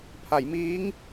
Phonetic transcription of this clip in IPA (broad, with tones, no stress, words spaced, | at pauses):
pʰa˩˦jmiː˦˥ŋ